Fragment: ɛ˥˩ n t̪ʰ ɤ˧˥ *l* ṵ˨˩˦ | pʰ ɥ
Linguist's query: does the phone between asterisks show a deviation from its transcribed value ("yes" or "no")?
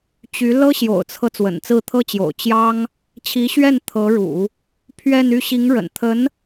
yes